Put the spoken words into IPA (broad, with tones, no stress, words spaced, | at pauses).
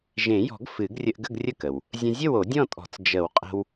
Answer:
ʒẽ˨˩˦jɔ̤˨˩˦ɡ fɨ˨˩˦ɡrʲə˧ʔɡə˥˨ɡ rʲə˥˨kə˩w | zʲə̃˧zʲə˥˨wo˨˩˦ dʲɔ̃˥˨tʼɔ̤˨˩˦t͡s d͡ʒə˨˩˦wqʼə̤˧w